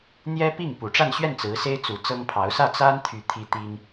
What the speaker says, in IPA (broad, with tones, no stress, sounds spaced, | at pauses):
n̪ j ɛ˥ p i˥˩ ŋ p u˨˩ ʈ͡ʂ a˥˧ n ɕ ɥ ɛ˥˩ n t͡s ɹ̩˧˥ s e˥ ɪ̯ t͡s u˧˥ t͡s ɤ˥ ŋ pʰ ɑ˧˥ ʊ̯ s ä˥˩ t͡s a˥ n t̪ʰ y˧˥ t̪ʰ i˥ t̪ i˥ ŋ